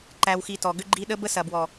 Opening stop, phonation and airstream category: click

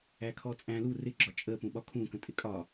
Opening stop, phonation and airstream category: aspirated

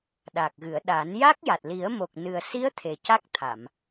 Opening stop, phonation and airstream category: implosive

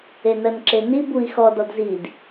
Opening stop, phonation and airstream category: click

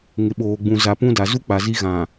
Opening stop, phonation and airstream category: implosive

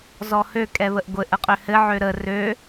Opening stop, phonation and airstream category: ejective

